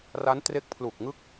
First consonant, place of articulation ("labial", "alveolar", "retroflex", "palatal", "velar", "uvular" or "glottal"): alveolar